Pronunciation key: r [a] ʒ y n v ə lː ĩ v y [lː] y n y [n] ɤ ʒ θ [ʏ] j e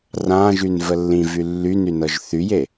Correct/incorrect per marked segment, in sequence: incorrect: ã, correct, correct, incorrect: y

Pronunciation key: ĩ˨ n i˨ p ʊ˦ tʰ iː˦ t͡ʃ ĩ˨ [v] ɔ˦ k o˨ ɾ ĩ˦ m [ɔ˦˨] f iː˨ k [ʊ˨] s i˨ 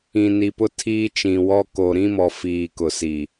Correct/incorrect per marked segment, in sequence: incorrect: w, incorrect: ɔ˨, correct

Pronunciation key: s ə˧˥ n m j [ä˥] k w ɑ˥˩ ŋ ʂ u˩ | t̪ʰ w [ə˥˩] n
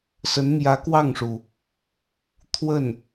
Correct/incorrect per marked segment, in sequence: incorrect: ä˧˥, correct

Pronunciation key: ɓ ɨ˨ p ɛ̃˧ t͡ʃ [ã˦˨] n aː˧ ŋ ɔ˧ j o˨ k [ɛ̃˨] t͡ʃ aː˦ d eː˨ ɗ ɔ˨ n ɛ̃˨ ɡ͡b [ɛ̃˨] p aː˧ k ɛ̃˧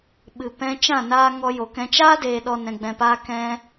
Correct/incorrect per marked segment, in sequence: correct, incorrect: ɛ̃˧, correct

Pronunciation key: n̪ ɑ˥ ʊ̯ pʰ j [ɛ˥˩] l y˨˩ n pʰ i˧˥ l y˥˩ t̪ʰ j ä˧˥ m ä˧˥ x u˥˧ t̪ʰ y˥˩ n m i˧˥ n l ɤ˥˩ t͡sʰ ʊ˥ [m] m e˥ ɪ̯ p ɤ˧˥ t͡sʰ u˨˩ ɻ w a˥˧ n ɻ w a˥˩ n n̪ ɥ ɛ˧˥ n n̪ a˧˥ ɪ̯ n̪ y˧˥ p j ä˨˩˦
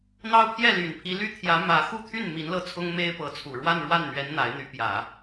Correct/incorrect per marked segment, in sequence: correct, incorrect: ŋ

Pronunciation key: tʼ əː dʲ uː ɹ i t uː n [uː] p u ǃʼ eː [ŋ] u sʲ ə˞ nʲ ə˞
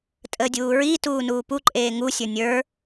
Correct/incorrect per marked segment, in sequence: correct, correct

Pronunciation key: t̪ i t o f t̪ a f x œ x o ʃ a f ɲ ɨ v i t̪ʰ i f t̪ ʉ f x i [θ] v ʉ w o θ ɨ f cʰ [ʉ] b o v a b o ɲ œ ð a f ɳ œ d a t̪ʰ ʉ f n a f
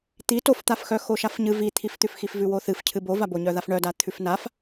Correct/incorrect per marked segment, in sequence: incorrect: f, incorrect: ɨ

